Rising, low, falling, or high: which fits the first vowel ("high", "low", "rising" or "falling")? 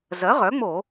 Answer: rising